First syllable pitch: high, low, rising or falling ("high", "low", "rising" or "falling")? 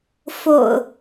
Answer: low